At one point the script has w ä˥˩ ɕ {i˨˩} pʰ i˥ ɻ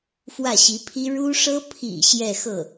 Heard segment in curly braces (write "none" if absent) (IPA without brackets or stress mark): i˧˥